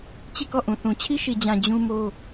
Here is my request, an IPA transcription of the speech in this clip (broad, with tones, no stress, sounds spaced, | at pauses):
t͡ɕ i˦˨ k ɔ˦˨ ʔ ũ˨ θ ũ˨ t͡ɕʰ i˦ ʃ i˨ d͡ʑ ã˨ d͡ʑ ũ˦ m o˦